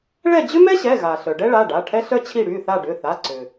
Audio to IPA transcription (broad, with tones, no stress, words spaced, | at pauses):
ɭɛ˦˨d͡ʑʏ˥mɛ˥ɕɛ˩˧˩ ɣa˩ ɬœ˩ ɖɛ˥ɭa˩˧˩ ɖa˩˧˩ ʈʰɛ˥ɬœ˥t͡ɕʰi˦˨ ɽy˩˧˩θa˦˨ɖʏ˩˧˩ θa˩˧˩ǀʏ˩